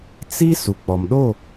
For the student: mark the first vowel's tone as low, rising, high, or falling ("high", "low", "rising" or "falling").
high